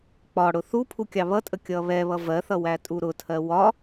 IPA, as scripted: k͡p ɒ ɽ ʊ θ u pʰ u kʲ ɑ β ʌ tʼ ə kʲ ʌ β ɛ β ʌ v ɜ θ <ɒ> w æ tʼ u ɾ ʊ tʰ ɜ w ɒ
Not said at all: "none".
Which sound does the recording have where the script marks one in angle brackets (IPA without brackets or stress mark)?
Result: ʌ